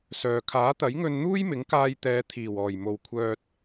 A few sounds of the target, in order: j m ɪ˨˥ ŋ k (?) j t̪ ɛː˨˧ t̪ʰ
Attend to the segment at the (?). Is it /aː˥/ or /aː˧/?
aː˧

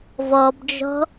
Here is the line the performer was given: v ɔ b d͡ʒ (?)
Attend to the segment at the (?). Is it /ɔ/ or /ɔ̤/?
ɔ̤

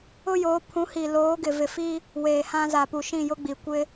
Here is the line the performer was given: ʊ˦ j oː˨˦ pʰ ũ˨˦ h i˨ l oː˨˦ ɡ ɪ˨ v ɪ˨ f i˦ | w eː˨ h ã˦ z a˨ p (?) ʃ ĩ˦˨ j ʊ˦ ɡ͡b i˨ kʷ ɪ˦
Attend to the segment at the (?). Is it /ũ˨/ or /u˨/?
u˨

